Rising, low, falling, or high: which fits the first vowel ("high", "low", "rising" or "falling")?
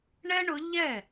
high